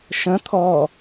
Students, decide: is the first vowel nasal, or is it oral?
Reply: nasal